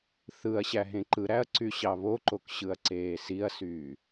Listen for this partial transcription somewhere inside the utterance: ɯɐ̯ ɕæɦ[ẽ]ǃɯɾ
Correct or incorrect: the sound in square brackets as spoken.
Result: correct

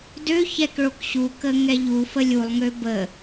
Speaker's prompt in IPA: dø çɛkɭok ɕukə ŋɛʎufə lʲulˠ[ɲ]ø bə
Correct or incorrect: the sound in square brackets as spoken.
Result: incorrect: ŋ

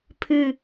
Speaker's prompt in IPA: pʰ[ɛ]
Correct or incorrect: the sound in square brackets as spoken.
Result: incorrect: ɨ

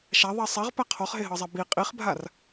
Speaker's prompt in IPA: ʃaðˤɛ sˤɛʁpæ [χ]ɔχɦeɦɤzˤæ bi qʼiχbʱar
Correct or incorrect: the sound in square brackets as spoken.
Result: incorrect: qʰ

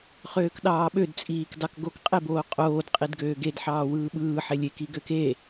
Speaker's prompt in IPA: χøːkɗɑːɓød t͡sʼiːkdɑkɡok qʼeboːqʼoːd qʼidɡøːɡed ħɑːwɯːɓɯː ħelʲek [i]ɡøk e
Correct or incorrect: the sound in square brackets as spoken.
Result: correct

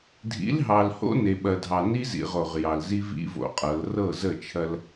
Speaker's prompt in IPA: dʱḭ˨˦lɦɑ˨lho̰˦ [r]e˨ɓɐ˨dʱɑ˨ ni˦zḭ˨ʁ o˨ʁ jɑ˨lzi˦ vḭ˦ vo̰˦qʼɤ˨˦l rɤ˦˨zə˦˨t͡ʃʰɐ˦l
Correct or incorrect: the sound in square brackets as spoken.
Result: incorrect: n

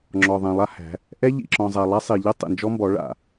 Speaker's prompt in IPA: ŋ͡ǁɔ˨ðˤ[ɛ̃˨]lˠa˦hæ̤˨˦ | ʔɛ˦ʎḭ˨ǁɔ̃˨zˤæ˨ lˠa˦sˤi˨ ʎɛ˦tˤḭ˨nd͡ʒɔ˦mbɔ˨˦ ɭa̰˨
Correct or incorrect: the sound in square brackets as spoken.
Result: correct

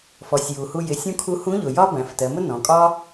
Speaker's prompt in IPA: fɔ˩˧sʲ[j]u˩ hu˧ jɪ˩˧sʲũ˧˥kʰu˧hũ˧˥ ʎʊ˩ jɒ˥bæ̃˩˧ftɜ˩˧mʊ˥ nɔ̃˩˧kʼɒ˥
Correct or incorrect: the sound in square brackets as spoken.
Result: correct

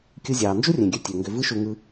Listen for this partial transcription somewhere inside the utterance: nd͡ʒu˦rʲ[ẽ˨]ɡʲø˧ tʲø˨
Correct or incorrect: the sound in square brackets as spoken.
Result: correct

